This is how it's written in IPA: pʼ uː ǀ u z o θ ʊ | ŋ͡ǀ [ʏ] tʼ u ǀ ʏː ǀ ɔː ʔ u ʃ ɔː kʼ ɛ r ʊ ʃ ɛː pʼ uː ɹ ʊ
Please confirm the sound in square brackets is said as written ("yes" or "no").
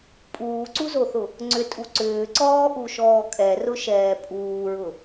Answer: yes